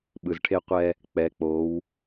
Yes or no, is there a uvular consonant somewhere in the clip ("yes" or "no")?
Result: yes